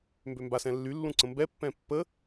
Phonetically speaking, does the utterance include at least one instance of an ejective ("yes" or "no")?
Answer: no